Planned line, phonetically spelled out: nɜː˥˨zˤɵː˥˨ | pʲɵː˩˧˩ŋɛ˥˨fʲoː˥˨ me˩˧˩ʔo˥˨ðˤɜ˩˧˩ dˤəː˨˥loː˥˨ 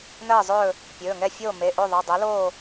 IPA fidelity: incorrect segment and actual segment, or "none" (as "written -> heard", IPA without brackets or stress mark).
none